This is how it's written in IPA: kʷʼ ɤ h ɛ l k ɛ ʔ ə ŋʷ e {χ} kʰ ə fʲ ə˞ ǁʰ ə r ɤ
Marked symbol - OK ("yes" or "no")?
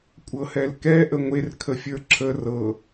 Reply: no